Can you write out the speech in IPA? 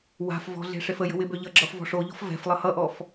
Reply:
w a̤ f v ɔ̤ ɮ e̤ ʂ e f ə j ə̤ w ɪ b ø ʎ ʌ ɡ͡ǁ ʌ f v ɔ̤ ʂ o ʎ ɔ̤ f v ɛ̤ f lˠ ʌ h ʌ ʔ ɔ f

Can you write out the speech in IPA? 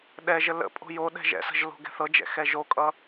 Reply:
ɗ ɛ ʒ ə l ə̰ pʼ o̤ j o ɗ ɛ̤ ʒ ɛ̰ s ə̤ ʒ l o̤ ɡ ɛ̤ θ ɤ d͡ʒ ɛ̰ x ɛ ʒ o kʼ ʌ

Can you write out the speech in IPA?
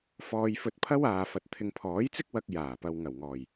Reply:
f ɔː˧ j f ɵ˧ t̚ pʰ ɐ˥ w aː˨ f ɐ˨ t̚ t̪ʰ ɪ˨ ŋ pʰ ɔː˨˥ j t͡s ɪ˥ k̚ w ɐ˧ k̚ j aː˨˩ p ɐ˨ w ŋ ɐ˨˩ w ŋ ɔː˨˩ j

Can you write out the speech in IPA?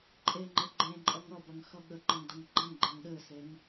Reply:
ǃʼ e ŋ͡ǃ ɘ ɡ͡ǃ ẽ ǃʼ ʌ ŋ ʌ b ɐ ŋ x ʌ ɠ ə ǃ ə̃ ŋ d ɐ ŋ ɡ͡ǃ ɐ̃ ŋ ɡ͡ǃ ẽ ŋ ɗ ɘ s e ŋ

